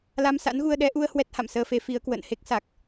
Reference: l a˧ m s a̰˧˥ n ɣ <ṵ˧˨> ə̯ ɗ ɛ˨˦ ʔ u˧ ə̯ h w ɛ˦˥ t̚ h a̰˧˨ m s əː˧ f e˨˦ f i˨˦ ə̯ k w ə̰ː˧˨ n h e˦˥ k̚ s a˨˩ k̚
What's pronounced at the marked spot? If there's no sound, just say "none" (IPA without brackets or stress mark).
u˧